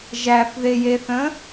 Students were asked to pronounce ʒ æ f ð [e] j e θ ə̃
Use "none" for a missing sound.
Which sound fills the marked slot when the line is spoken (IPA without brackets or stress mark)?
e